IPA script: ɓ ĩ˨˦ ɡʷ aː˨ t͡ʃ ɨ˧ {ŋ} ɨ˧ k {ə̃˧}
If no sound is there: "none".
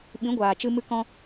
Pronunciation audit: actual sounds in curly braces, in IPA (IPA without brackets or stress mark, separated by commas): m, ɔ̃˧